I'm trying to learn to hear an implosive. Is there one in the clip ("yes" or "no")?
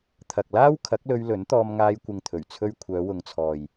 no